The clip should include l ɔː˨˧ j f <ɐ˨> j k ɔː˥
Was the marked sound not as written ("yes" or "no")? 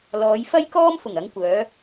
yes